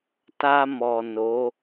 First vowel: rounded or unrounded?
unrounded